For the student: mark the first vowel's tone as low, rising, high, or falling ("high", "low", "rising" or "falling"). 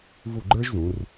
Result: falling